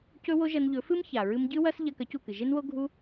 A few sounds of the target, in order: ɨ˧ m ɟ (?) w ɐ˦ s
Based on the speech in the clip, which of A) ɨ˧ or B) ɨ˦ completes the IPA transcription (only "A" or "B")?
B